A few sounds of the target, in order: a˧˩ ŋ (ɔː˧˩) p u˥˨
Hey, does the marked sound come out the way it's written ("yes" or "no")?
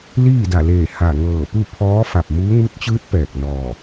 no